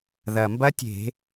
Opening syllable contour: low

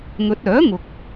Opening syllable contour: rising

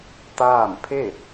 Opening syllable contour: falling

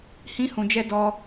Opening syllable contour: high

